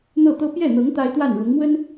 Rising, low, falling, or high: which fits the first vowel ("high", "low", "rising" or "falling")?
falling